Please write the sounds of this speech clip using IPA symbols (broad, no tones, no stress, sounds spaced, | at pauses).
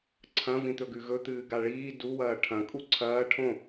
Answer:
ǀʰ ɐ̃ v ĩ t̪ ɵ ɡ ʉ ɣ ɵ t̪ ɨː ɡ a ɭ iː d u w ɐː ʈʰ ɐ̃ kʼ u ǀʰ ɐː ʈʰ õ